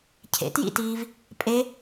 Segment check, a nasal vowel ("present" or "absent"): absent